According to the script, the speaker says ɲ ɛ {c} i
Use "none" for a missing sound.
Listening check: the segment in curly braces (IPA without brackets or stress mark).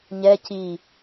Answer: c